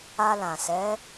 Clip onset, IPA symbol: a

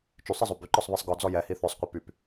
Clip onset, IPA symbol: t͡ʃ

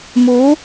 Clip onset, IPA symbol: m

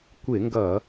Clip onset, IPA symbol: kʷ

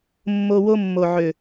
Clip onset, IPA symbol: mː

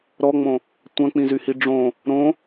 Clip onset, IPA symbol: ɾ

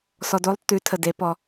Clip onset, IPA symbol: s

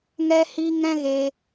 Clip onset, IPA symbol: ŋ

